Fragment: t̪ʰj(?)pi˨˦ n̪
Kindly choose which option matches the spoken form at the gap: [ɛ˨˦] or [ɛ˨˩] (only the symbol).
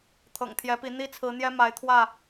ɛ˨˦